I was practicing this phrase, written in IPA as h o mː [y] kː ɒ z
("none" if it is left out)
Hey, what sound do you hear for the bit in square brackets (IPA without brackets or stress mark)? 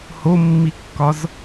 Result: i